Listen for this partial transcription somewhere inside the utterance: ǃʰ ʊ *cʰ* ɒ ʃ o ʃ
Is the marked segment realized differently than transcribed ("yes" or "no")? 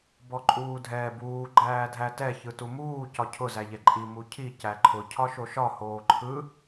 no